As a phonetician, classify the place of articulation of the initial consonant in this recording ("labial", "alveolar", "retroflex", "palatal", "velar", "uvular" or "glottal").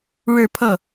retroflex